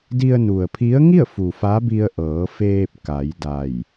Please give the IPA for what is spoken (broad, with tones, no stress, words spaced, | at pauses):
di˧ə̯ nu˩ə̯pʰi˧˥ə̯ ŋi˥˨ə̯fu˩ fa˧˥bi˧ə̯ʔɤː˩˧feː˧p̚ ka˩˧jda˧˩j